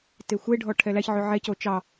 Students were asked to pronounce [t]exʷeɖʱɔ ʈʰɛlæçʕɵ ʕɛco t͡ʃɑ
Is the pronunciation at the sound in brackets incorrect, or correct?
correct